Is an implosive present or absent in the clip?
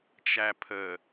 absent